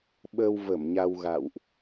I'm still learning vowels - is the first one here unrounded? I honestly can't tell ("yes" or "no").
yes